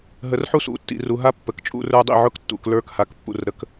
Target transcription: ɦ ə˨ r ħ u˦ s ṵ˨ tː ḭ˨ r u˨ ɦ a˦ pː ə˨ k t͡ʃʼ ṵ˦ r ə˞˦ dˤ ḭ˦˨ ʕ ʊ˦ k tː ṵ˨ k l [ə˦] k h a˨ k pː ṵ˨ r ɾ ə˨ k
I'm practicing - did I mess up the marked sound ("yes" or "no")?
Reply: yes